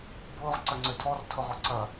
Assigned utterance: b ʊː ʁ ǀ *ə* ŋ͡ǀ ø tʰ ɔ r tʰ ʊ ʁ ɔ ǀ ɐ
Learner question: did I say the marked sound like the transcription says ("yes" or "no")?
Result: no